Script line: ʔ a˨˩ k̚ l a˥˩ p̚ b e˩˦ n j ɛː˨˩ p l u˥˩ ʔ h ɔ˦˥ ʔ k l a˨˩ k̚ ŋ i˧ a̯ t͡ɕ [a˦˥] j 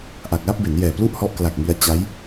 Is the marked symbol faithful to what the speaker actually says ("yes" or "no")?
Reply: yes